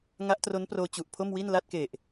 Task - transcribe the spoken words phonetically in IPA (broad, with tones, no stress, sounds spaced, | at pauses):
ŋ a˦˥ ʔ t r o˦˥ n p r oː˧ t͡ɕ u˨˩ ʔ pʰ o˥˩ m w i˥˩ n l a˥˩ t̚ k e˨˩ ʔ